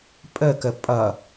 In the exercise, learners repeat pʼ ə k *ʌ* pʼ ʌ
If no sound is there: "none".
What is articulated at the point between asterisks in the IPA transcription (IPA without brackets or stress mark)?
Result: ə